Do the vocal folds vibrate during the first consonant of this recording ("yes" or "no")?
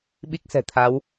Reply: yes